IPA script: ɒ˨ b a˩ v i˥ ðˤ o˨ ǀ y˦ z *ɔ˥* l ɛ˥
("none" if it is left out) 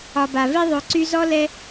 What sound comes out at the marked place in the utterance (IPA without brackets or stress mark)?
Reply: ɔ˥